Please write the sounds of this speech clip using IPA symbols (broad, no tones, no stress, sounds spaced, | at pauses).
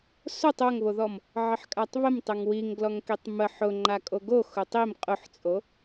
s o tˤ o ŋ β o ð ɔ m | ʕ ə ħ kʼ a tˤ β ə m tˤ ə ŋ w i ŋ ɡ l ɔ ŋ k i tˤ m ə ħ ʊ ŋ͡ǃ a kʼ o ɡ o x ʊ tˤ i m qʼ ʊ ħ t͡sʼ o